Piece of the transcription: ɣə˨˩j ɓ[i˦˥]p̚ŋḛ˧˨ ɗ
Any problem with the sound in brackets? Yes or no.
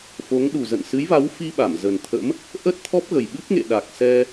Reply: yes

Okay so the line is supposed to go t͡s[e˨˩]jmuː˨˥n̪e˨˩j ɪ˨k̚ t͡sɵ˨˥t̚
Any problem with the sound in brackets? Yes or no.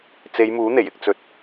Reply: yes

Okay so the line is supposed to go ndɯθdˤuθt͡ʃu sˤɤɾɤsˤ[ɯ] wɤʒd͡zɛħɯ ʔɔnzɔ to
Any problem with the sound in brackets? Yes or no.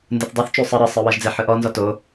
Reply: no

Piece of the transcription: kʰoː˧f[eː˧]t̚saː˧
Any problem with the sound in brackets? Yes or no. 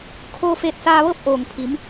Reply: yes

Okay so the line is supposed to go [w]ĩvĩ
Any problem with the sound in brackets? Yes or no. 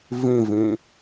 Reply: yes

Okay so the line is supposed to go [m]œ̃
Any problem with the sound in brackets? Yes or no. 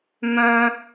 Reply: no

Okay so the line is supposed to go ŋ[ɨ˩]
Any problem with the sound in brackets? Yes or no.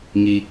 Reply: yes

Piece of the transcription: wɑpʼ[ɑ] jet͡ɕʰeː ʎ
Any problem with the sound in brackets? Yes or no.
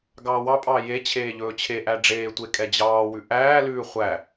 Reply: yes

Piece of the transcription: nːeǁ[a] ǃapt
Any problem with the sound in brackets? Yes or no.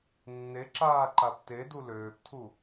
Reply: yes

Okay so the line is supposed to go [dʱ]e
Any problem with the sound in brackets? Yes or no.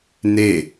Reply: yes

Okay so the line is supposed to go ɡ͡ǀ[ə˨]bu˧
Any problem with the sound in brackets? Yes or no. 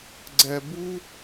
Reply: yes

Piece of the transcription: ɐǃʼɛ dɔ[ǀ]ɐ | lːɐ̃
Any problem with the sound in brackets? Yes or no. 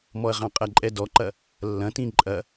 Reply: yes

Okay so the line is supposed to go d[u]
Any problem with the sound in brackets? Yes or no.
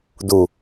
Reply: no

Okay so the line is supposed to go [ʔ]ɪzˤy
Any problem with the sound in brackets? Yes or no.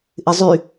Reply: no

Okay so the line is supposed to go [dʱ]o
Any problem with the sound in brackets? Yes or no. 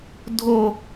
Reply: no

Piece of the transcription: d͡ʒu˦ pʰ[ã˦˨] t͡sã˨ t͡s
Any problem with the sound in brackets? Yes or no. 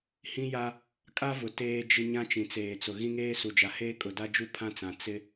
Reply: yes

